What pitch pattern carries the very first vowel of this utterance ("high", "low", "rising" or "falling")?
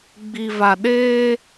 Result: low